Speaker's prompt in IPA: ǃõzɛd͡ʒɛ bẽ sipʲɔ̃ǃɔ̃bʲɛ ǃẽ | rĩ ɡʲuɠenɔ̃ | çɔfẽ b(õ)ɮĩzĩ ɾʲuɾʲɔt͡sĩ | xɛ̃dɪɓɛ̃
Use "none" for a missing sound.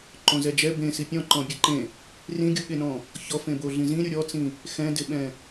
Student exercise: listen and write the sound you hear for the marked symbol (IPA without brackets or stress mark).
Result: o